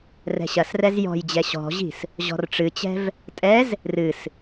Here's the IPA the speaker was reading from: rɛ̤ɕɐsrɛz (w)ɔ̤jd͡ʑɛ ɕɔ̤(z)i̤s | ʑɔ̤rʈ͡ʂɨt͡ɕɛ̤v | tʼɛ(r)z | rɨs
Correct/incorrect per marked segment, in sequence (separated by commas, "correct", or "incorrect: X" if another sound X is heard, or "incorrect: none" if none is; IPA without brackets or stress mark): incorrect: j, incorrect: ʑ, incorrect: none